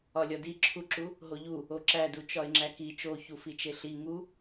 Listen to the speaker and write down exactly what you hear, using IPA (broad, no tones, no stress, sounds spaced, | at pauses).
ɒ lʲ ɒ d i ǁʰ u ǁ u | ɦ o ʎ u | o ǁ æ d u t͡ʃ ɒ ɪ̯ ŋ͡ǁ æ k i t͡ʃ o ç u f i t͡ʃ e ɬ i ŋ u